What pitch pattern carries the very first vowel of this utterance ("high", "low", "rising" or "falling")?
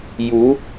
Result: rising